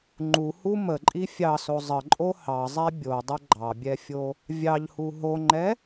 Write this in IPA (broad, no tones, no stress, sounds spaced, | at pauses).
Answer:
ŋ͡ǃ u h u m ə ǃʼ i fʲ ɑ s o zˤ ə ǃʼ o h ɑ zˤ ɛ bʲ o dˤ ə ɡ͡ǃ ɑ bʲ ɛ fʲ o | vʲ ɑ ʎ h u ɦ o ŋ͡ǃ ɛ